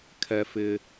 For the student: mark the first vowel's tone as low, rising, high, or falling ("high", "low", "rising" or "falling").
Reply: low